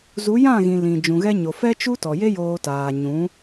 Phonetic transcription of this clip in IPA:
zu˨˦ jã˦˨ɣĩ˨ lĩ˨ d͡ʒũ˨ɣɛ˧ɲo˨ fɛ˦t͡ʃu˦tɔ˨je˦ joː˧taː˨ ɲũ˨˦

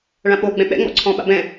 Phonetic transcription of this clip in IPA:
ɭãɓo ɡ͡bɛ̃ɓɛ̰ ŋ͡mɔ̰ǀʰɔ̃ɓa̰bɛ̃

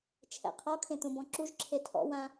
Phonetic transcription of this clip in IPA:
t͡ʃʰɛ̰qʰɔkʰẽ t̪ũbɔ̃ǁuʒǁʰe tʰɔ̰wã

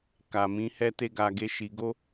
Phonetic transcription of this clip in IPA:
ka˨mĩ˨˦hɛ˦te˦ ɡa˧ɡe˦ ʃi˧ ɡo˦

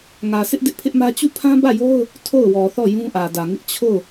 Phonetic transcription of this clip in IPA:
ŋä˨sɪ˦ʔ dɪ˦ʔpʰɪ˦ʔmä˦ t͡ɕu˦˨pʰã˦bä˦˨jo˦ʊ̯ | tʰo˦˨ʊ̯wɔ˨θɔ˦˨ jũ˦ʔä˨dä˨ŋɪ˦ʔ t͡ɕʰo˦˨ʊ̯

